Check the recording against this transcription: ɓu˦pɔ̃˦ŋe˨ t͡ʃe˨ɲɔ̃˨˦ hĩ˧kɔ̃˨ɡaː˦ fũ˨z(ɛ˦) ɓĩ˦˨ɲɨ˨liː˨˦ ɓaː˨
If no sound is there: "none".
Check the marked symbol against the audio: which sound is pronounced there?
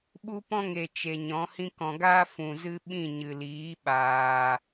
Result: ɨ˦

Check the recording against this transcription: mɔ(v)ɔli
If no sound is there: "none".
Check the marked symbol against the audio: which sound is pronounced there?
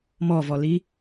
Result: v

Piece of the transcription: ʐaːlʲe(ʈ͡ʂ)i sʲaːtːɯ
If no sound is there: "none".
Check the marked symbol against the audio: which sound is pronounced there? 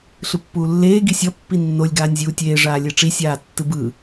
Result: ʈ͡ʂ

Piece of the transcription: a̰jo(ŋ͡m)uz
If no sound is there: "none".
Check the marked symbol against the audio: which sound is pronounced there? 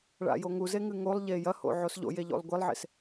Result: ŋ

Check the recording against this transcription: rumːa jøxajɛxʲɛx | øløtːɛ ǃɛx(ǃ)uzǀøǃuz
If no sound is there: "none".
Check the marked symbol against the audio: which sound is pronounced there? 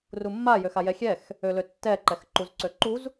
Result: ǃ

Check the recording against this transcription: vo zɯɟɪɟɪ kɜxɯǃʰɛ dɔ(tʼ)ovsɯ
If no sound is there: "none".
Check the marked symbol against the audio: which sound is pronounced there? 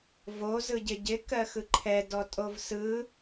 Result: tʼ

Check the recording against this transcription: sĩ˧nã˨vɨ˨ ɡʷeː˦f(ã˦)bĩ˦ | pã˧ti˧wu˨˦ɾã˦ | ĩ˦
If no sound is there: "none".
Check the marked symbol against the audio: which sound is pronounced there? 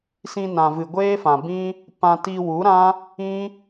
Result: ã˨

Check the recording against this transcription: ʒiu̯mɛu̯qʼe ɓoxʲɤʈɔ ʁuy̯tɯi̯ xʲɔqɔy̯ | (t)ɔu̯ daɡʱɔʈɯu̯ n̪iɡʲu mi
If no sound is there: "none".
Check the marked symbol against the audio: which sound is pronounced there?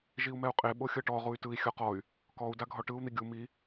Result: k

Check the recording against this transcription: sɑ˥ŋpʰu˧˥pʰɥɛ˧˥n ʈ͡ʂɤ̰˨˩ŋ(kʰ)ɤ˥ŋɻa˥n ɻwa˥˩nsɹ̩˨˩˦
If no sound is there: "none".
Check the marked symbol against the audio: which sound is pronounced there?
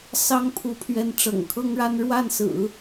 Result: kʰ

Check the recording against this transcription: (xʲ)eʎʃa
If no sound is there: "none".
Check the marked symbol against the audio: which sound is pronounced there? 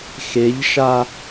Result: x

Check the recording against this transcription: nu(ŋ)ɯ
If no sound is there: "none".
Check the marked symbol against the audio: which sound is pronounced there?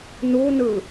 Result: n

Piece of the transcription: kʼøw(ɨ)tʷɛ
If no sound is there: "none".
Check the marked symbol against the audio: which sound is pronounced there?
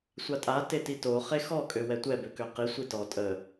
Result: ɛ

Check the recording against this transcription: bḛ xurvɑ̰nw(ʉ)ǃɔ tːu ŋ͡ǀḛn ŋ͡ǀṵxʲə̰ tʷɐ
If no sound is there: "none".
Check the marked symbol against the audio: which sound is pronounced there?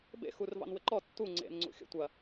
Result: ɘ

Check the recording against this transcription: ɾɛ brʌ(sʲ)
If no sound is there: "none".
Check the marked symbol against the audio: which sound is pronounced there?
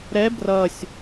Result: sʲ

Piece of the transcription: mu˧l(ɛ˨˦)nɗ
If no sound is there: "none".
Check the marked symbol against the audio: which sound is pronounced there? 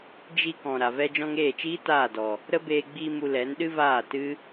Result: ɛ˨˦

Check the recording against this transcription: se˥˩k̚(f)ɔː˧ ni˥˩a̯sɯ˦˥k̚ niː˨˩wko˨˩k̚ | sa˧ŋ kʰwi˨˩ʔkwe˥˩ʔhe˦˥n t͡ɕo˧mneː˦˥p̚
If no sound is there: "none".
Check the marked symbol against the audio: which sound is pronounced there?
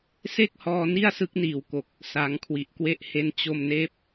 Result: h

